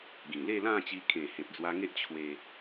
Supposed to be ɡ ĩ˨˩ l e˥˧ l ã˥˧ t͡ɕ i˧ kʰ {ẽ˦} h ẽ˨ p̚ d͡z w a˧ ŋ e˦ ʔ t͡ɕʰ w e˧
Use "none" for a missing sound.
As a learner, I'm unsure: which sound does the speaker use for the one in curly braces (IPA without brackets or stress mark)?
ẽ˨˩